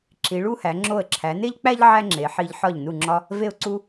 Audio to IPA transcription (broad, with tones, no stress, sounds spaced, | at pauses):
ǁ i˩˧ ɭ u˥˧ h æ˩˧ ŋ͡ǁ o˧˩ ə̯ ǁʰ æ˩˧ n e˥ ʎ k͡p æ˥ ʎ ʕ æ˥ ŋ͡ǁ e˩˧ ħ i˧ ʎ ħ ɒ˧˩ ʎ n u˧˩ ŋ͡ǁ ɒ˧ | v e˧˩ ʊ̯ ǀ u˧